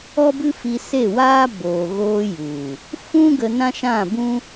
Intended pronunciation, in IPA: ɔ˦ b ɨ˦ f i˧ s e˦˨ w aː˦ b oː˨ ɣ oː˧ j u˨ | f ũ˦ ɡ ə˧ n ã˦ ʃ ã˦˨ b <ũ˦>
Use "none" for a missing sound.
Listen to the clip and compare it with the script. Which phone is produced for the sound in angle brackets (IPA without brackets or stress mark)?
ũ˦